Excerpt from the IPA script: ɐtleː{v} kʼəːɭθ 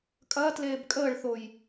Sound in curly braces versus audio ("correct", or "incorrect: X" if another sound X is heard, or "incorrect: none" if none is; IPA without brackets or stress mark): incorrect: b